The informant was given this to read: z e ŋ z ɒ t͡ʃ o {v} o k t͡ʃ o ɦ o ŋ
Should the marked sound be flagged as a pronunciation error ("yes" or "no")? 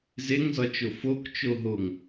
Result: yes